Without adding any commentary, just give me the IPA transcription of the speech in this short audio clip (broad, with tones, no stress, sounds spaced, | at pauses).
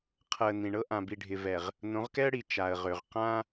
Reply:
qʰ ɤ˨ ə̯ n ĩ˨ ɳ ɤ˦ ʔ ã˨ b i˨ ɖʱ ɪ˨ v ɛ˨ ʁ | n õ˨˦ ʁ k ɛ˦ ə̯ ɽ i˨ t͡ʃ a˨ ə̯ ʁ ø˨ ʁ q ã˦